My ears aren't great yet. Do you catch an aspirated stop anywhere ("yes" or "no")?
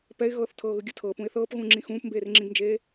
yes